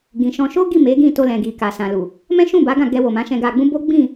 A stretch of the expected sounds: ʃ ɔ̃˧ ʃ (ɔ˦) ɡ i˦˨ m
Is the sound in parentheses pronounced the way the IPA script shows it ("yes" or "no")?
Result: no